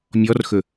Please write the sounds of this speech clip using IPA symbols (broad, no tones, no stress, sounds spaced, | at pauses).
mʲ ɔ r x ɵ